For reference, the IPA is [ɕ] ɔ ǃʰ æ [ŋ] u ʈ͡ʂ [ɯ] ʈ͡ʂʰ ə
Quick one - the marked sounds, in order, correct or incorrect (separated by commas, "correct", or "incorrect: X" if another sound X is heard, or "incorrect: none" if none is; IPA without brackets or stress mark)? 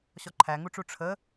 correct, correct, incorrect: u